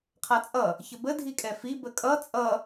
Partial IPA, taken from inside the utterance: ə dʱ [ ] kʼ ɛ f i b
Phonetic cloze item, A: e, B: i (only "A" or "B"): B